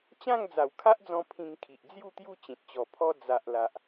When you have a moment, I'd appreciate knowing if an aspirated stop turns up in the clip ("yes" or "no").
yes